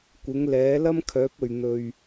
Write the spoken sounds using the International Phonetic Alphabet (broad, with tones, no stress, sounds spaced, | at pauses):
kʷ ɪ˨˥ ŋ l ɛː˨˥ l ɐ˥ m kʰ œː˨˥ p̚ ɵ˨ ɥ n̪ ɵ˧ ɥ